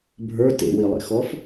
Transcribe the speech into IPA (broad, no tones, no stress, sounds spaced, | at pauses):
bʱ ə˞ t ḛ w i lˠ ḛ x ɔ f